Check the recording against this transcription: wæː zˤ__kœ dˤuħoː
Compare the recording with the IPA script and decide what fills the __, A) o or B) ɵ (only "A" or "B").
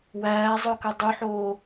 B